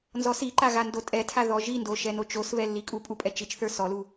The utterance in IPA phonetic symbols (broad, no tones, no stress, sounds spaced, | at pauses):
n z ɔ s i ǃ a ɣ a n d o tʼ ɛ tʰ a ð ɔ ʒ i n d o ʃ ɛ n o t͡ʃ o s β ɛ lː i kʼ u pʼ u pʼ ɛ t͡ʃ i t͡ʃ θ ə˞ s ɔ l u